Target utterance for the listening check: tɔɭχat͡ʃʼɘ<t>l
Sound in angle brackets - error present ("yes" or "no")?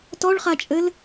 yes